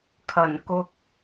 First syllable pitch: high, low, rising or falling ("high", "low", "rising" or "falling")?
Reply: low